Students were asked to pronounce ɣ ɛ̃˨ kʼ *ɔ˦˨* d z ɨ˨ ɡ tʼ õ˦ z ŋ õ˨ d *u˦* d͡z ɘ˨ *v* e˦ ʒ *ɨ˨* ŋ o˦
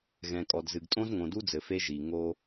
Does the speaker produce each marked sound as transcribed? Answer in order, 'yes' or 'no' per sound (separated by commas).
no, yes, no, no